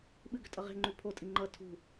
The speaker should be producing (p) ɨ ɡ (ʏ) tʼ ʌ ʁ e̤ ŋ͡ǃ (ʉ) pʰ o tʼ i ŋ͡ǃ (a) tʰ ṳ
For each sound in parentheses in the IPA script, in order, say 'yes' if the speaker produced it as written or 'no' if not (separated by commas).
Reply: no, yes, yes, no